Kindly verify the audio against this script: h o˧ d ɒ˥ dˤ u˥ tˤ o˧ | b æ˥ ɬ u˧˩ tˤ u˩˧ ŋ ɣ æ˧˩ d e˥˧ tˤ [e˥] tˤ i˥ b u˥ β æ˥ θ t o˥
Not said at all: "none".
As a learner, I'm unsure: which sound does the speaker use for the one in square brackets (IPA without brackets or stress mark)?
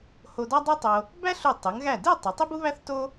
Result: e˩˧